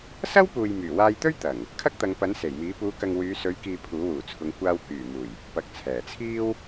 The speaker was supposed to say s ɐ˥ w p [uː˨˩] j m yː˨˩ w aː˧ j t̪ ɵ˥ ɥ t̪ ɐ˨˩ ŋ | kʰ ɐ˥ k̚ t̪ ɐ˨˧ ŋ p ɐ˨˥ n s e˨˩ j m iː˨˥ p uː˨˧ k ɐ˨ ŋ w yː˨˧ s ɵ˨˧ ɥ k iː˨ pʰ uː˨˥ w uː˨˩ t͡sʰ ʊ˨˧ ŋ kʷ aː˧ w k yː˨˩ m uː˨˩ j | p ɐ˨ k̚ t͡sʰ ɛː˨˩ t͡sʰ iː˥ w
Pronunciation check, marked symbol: incorrect: uː˨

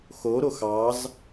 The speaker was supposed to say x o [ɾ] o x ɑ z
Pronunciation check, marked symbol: correct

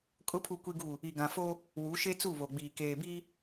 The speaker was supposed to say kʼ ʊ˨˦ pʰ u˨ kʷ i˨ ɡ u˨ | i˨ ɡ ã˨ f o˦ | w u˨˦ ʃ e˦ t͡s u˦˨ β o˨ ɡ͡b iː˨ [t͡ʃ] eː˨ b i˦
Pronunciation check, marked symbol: incorrect: k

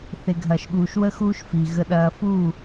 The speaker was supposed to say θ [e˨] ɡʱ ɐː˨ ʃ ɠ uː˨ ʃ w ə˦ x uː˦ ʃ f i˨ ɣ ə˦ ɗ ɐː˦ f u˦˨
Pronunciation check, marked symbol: correct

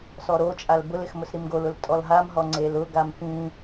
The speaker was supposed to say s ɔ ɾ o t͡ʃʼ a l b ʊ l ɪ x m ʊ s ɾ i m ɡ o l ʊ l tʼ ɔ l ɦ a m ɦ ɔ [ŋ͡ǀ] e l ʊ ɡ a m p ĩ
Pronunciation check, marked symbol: correct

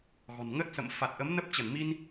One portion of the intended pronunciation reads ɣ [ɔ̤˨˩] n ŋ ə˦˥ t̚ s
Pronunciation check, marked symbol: correct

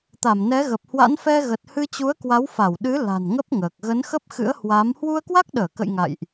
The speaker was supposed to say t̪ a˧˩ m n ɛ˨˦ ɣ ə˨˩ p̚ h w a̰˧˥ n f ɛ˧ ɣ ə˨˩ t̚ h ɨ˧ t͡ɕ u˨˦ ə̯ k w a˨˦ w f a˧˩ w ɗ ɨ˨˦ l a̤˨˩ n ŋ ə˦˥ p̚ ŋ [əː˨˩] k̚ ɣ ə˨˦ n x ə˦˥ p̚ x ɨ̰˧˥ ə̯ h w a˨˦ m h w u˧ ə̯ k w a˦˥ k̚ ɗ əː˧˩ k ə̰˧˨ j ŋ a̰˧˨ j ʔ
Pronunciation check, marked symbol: correct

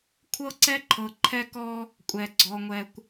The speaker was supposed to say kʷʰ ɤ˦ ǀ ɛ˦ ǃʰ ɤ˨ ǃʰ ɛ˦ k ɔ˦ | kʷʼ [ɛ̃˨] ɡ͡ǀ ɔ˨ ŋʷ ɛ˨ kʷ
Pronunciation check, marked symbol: incorrect: ɛ˨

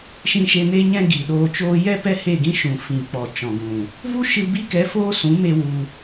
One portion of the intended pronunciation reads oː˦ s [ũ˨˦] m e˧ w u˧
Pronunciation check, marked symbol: correct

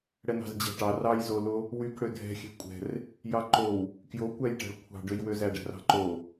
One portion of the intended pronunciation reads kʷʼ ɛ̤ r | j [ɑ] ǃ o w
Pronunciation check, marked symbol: correct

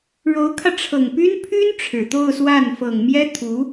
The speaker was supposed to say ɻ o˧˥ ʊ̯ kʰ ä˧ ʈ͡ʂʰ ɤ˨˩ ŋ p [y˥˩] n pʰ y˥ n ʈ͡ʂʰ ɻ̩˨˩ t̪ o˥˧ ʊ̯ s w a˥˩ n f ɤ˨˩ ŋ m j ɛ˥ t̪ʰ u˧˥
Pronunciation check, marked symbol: incorrect: y˥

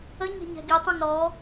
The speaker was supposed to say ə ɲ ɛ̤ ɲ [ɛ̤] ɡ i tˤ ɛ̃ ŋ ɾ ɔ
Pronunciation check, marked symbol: correct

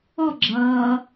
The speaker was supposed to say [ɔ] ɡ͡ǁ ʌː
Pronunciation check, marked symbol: correct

